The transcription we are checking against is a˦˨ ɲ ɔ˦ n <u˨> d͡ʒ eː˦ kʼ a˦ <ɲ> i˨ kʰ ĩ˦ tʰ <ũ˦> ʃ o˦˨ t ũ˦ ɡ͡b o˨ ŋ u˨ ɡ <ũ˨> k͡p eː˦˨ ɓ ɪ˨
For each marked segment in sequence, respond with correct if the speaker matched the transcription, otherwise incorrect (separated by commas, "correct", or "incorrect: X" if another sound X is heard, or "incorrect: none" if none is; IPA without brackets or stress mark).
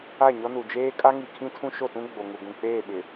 correct, incorrect: ŋ, correct, correct